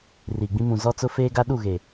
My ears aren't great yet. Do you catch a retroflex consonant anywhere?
no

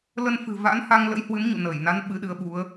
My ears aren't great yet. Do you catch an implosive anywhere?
yes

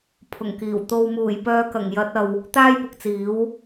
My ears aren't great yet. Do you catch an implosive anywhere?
no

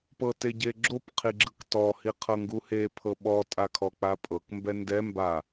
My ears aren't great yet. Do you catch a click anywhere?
yes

